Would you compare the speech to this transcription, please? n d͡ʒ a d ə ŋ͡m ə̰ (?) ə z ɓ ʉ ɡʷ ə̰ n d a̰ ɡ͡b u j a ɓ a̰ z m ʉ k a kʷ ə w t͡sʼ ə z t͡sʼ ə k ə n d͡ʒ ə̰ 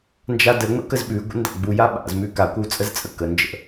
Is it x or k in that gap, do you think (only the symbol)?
k